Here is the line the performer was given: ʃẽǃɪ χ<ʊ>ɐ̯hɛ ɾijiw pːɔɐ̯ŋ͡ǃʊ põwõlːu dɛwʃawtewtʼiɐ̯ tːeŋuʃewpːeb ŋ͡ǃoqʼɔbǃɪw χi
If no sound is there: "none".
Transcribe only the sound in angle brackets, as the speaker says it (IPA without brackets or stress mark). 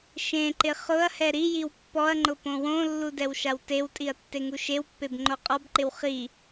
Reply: ʊ